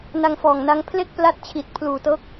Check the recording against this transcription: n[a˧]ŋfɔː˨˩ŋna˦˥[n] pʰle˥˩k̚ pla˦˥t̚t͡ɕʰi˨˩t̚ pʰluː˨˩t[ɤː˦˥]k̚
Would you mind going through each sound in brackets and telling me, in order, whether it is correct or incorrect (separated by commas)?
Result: correct, incorrect, correct